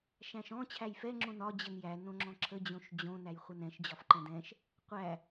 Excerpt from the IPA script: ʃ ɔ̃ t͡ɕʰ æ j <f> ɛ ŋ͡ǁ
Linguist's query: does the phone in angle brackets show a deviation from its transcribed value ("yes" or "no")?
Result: no